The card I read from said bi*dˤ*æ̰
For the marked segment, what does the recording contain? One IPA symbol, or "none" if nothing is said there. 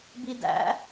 d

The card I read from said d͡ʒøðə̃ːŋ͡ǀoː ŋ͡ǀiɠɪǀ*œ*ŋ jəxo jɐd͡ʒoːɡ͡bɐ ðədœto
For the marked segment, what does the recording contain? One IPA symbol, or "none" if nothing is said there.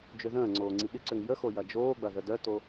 ø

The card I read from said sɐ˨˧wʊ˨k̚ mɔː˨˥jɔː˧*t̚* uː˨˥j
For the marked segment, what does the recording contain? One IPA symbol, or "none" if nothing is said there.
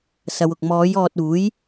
t̚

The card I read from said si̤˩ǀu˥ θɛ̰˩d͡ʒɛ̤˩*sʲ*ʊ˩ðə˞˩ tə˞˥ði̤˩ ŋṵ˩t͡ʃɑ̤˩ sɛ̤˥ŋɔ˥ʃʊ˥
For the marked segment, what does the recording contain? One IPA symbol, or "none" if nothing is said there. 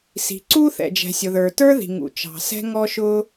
sʲ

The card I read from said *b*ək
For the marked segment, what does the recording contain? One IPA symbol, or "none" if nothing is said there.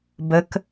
b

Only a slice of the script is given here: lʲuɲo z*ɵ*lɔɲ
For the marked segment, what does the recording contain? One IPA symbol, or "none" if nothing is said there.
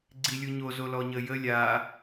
o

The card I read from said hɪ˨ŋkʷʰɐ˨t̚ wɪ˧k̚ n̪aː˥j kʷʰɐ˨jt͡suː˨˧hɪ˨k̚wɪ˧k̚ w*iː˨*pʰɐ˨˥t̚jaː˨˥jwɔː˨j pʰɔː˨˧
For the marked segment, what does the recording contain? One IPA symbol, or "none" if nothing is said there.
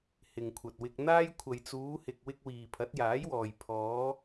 iː˨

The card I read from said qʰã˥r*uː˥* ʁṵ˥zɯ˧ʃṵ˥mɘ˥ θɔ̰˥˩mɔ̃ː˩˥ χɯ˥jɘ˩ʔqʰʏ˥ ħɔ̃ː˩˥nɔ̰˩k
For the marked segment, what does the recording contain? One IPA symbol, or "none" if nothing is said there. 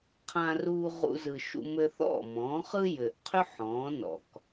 uː˥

